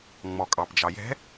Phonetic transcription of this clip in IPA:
ŋ͡m ɔ kʼ ɑ p d͡ʒ ɑ j ɛ̤

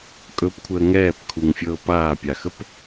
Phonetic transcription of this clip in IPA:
kʼ ɵ p kʷʰ əː ŋ ɛː p kʰ u ŋ fʲ ɤː p aː pʲ a x ə p

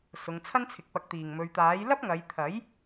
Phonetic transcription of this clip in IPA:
s ʊ˨ ŋ t͡sʰ ɐ˥ n t͡sʰ ɪ˨ k̚ p ɐ˨˥ k̚ t̪ iː˨˩ ŋ m ɵ˨ ɥ t̪ aː˨˥ j l ɐ˥ p̚ ŋ ɐ˨˧ j t̪ʰ ɐ˨˥ j

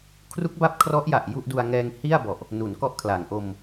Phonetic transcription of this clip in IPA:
kʰ r u˦˥ k̚ b a˦˥ p̚ kʰ r ɔ˦˥ ʔ j a˨˩ ʔ j u˥˩ ʔ d u˧ a̯ ŋ ɛː˧ ŋ h i˥˩ a̯ b ɔ˨˩ ʔ | n u˩˦ n k ɔ˥˩ ʔ kʰ l a˩˦ ŋ ʔ o˧ m

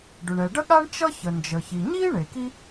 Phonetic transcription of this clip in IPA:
ɖ ʏ˩ ɳ ɛ˩ ɖ ə˥ ɠ a˥ ɳ t͡ʃ ʌ˥ ç ə˩ n d͡ʒ ə˩ ç i˩ ɲ iː˥ ɳ e˩ k i˥

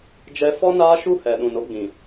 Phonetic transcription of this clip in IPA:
d͡ʒ ɛ˦ f ɔ˦ n aː˦ ʃ u˦ h ɛ˨ ɗ ũ˨ n o˦ ɡ͡b ĩ˨

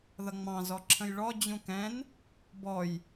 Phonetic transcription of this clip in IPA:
ð ʌ ŋ͡m ɑ̃ z ɔ ǁʰ ə̃ j ɭ ɔ d͡ʑ ũ k ɛ̃ n | b ɔ j

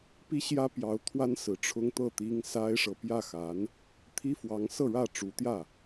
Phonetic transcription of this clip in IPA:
p i˥ ɕ j ä˥ p j ɑ˧˥ ʊ̯ t̪ʰ w a˥ n s ɹ̩˨˩ ʈ͡ʂʰ ʊ˥ ŋ t̪ ɤ˥˩ t̪ i˥ ŋ s a˥ ɪ̯ ʂ ɤ˨ p j ä˥˩ x a˧˥ n | t̪ʰ i˥ f w ɑ˧˥ ŋ s ɤ˥˧ ɻ ä˥˩ ʈ͡ʂ u˧˥ t̪ j ä˥˩

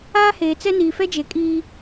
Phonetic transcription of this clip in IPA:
aː˦ h eː˨ t͡s ɛ˦ n iː˨ f ɛ˦ d͡ʒ e˨ kʼ iː˦

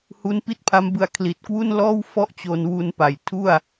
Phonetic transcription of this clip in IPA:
h u˦˥ n p i˥˩ t̚ pʰ a˦˥ m b ɯ˧ a̯ kʰ l i˨˩ t̚ k w u˥˩ n l ɔː˥˩ w f ɔ˥˩ ʔ t͡ɕ o˧ n w u˧ n p a˨˩ j tʰ u˥˩ a̯

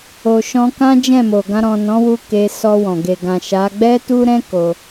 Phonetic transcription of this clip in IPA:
o˨ ʃ ɔ̃˧ k ã˦ d͡ʒ ɛ̃˦˨ m o˨ ɡ ã˧ ɾ ɔ̃˨ n ɔ̃˨˦ w u˧ k e˧ s ɔ˧ w ɔ̃˨ ɡ e˨ ɡ ã˨ ʃ a˨˦ ɡ͡b ɛ˦ t u˦ ɾ ɛ̃˦ k o˧

